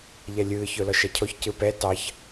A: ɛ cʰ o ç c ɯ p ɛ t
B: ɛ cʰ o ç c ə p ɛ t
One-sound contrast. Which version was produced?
A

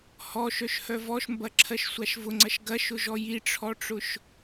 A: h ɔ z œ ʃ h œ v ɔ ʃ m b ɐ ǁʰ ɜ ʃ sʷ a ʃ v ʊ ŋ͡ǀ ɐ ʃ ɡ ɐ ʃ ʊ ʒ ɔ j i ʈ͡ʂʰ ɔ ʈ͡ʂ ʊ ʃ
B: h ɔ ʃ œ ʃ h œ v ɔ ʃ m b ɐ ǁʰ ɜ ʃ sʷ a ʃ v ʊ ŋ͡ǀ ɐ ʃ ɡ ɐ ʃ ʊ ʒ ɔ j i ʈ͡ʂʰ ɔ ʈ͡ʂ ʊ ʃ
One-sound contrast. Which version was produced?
B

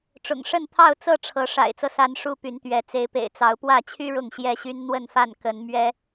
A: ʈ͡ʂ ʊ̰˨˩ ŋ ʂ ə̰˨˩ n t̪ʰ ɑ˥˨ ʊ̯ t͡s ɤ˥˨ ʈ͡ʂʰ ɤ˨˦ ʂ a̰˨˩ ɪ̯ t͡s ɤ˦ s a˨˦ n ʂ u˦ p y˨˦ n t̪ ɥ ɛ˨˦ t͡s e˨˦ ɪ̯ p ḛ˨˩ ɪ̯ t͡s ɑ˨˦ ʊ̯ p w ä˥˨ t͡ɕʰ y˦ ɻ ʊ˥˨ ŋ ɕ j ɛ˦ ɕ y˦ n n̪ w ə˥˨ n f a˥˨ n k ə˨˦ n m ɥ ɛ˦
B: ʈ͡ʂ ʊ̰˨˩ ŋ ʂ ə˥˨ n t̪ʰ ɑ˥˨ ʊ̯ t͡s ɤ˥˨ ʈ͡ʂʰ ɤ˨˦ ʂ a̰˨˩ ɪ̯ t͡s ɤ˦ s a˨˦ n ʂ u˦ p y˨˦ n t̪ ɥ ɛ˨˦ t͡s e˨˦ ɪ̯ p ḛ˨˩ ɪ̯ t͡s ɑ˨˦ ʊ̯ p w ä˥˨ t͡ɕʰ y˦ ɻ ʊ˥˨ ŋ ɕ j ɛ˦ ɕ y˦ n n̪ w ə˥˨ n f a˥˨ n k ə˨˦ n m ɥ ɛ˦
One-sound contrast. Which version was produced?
B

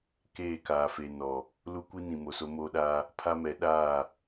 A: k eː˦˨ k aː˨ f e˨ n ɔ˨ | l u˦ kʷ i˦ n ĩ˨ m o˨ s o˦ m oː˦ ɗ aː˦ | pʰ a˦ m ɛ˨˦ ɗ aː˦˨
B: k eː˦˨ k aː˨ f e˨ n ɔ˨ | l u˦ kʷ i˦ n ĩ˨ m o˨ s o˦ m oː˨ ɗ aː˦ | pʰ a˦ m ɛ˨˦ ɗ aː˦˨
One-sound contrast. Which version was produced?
A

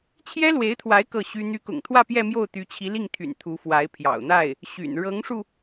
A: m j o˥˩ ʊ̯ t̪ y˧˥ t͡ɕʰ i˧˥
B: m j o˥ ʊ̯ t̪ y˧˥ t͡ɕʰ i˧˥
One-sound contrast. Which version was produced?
A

